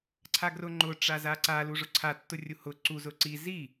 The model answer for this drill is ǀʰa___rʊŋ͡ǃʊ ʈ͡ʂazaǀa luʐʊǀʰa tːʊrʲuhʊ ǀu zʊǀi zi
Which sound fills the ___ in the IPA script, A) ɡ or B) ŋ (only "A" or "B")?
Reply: A